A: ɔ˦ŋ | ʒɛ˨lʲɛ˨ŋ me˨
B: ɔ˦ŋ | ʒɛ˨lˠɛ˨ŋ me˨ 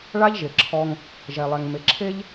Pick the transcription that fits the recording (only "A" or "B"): B